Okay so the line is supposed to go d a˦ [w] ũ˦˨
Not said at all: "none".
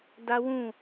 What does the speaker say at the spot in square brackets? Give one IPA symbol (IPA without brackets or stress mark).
w